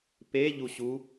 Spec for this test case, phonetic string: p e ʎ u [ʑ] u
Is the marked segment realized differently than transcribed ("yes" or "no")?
yes